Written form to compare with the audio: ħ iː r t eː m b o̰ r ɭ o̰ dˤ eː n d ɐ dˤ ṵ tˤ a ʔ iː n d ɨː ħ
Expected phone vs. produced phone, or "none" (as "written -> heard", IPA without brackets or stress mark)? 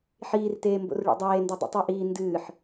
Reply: none